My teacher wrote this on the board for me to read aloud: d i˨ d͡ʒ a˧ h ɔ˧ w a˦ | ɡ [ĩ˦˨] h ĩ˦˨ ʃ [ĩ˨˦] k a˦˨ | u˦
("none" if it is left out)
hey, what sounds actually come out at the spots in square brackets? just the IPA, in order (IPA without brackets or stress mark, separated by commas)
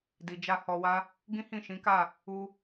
ĩ˦, ĩ˨˦